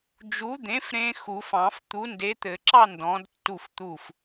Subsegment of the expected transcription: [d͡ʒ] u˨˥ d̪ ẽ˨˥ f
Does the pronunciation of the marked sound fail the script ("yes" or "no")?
no